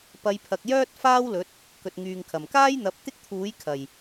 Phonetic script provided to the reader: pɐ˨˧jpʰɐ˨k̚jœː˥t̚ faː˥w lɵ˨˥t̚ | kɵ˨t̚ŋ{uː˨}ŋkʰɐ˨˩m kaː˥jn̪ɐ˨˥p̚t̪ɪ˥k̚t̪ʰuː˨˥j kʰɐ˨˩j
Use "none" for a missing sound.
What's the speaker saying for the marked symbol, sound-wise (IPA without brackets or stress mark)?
yː˨